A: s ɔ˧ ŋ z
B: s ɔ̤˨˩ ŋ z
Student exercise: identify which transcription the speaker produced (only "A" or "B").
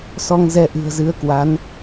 A